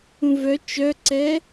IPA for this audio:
ũ v œ t͡ʃ œ ǀ ɛ

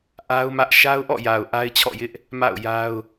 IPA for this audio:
ʔ a˦ ʊ̯ m ä˦ ʔ ʃ a˦ ʊ̯ ʔ ɔ̰˦˨ j a˨ ʊ̯ ʔ a˦ ɪ̯ t͡ɕʰ ɔ̰˦˨ j ɪ˦ ʔ | m a̰˦˨ ʊ̯ j a˦ ʊ̯

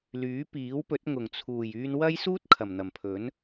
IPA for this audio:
l yː˨˥ p iː˨˥ w p ɵ˨˥ t̚ ŋ ʊ˨˩ ŋ t͡sʰ uː˨˩ j yː˧ n w ɐ˥ j s uː˥ t̚ kʰ ɐ˨˩ m n̪ ɐ˨˩ m pʰ ɵ˨˥ n

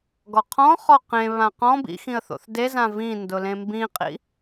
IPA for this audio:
ɡ ɔ qʰ ɔ̃ χ ɔ q ẽ β ã q ɔ̃ b ḭ x ĩ ə̯ θ o̰ θ d e z ã v ĩ n d ʊ l ẽ m b ĩ qʼ ḭ

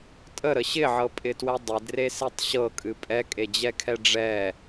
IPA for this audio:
tʼ ə ɾ ə ɕ ɪ ʕ ɤ pʼ ɪ t w ɛ dˤ ɪ d r e s e tˤ ɕ ɤ kʼ ɨ pʼ ɛ kʼ e d͡ʑ ɛ kʰ ɛ ɖ͡ʐ ɛ

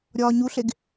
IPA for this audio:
ɾʲ ɒː ɲ u ɬ e ɡ

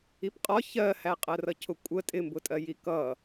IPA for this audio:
i p qʼ ɒ ç ɜ h æ qʼ ɜ r ʌ cʰ ʊ kʷʼ ə tʼ ɪ m b ʊ tʼ ɜ j i k ʌ

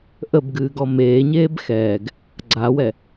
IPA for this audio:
ʔ ə b ɡ ɨː ɡ ɔ m eː ɲ eː b x ɛː ɡ | ɡ͡ǀ a w ɛ

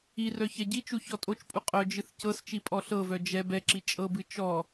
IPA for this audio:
i r œ ç ɛ ɟ i t͡ʃ u ç ɔ tʼ o t͡ʃ pʼ u qʼ œ d͡ʒ ɨ θ c ɤ s t͡ʃ i pʼ ɔ ɬ ɤ v œ d͡ʒ ɛ b ɛ ǁ i t͡ʃʼ ɤ b ɨ t͡ʃ ɔ

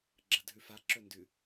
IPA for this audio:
ɡ͡ǁ ɐ dʱ ʉ f a ǁ ɵ n d ʉ

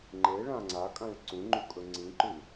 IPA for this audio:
ŋ͡ǃ e ɭ ã ŋ͡ǀ a kʼ ã ɭ ǀ ũ ŋ͡ǃ u kʼ ɵ ŋ͡ǀ ĩ ǃ ʉ

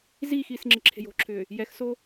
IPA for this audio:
z iː x iː s ŋ͡ǁ ɪ ǁʰ e̤ j o̤ ǁʰ ʏː | j ɛ x s o

